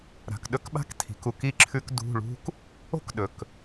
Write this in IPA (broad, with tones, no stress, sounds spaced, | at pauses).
ɾ a̤˨ k ɗ ɵ˥ k ɓ a̤˥ k tʰ i̤˨ k u˧˥˧ k i˥ ǁʰ ʉ˥ k d ṳ˧˥˧ ɭ ṳ˥ k | o̤˥ k ɗ ɵ˨ k